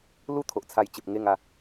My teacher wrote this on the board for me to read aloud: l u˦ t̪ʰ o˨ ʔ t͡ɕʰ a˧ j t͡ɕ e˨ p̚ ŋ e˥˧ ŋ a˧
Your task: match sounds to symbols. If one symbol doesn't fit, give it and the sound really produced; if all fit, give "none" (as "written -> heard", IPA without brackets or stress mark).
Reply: t͡ɕʰ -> t͡sʰ